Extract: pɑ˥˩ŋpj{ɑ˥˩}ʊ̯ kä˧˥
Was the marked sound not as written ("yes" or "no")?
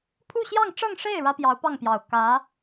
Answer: yes